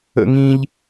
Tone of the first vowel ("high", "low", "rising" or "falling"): high